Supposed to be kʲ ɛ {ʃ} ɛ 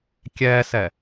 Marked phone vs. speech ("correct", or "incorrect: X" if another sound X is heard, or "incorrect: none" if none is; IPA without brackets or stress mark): incorrect: s